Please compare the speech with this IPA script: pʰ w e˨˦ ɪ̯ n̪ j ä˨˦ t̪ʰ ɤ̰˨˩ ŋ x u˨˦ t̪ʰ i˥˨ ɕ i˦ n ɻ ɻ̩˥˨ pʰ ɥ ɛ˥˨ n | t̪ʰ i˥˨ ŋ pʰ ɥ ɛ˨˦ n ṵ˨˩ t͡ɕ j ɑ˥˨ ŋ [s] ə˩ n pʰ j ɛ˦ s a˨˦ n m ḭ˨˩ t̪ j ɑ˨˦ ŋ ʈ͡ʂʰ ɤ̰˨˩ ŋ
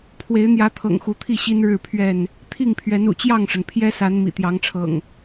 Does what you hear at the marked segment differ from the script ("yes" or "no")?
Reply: yes